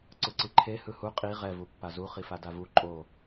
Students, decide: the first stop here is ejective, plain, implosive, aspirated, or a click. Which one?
click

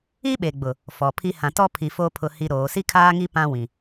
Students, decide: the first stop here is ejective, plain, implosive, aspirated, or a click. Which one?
implosive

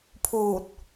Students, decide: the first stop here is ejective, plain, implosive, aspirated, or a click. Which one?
aspirated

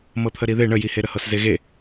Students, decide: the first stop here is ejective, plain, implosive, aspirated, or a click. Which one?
aspirated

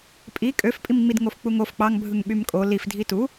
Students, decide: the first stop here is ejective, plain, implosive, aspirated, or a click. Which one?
ejective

